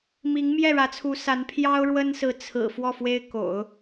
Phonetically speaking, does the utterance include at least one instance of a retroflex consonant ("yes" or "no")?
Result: yes